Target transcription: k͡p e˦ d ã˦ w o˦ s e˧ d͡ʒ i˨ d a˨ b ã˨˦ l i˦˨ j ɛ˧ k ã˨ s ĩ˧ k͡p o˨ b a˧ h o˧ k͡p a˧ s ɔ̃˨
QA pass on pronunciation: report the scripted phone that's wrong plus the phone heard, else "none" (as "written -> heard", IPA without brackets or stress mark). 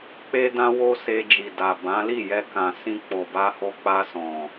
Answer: none